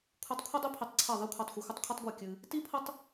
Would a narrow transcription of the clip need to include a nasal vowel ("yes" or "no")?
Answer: no